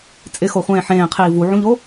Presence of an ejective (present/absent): present